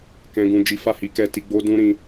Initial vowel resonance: nasal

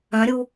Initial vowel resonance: nasal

